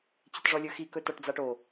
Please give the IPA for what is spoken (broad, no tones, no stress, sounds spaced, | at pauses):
t͡ɕ ɪ t ʐ ɔ lʲ ɵ x i k ɵ t ɔ ʈ d͡z a ʈ o